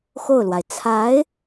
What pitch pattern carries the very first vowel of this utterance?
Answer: falling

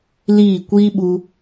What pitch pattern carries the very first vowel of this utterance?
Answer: falling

